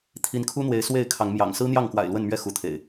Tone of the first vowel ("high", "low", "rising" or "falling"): rising